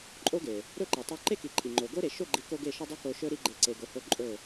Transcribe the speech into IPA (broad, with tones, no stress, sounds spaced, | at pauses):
ǃʼ o˦ ɡ e˨ | ɾ ɵ˦˨ ǃ i˨ tˤ ɵ˧ ǃ e˦ k i˨ ǃʼ i˨ ŋ͡ǃ o˨ ɡ o˦ ɾ e˨ ʃ o˦˨ ɡ͡ǃ i˨˦ k o˦ ɡ e˦˨ ʃ ɵ˦ dˤ o˦ k o˧ ʃ ɵ˦ ɾ i˦ ɡ͡ǃ e˧ ǀ e˨ ɡ o˨ h o˧ ǃʼ ɵ˦˨